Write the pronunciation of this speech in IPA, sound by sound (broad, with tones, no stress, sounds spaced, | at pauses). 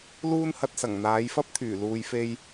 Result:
l uː˥ n h ɐ˧ t̚ s ɐ˨˩ ŋ n̪ aː˨˧ j f ɐ˥ p̚ t̪ʰ yː˨˩ l uː˨ j f e˧ j